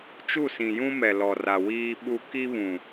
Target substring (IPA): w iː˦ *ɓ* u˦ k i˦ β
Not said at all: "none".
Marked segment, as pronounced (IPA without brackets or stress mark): ɓ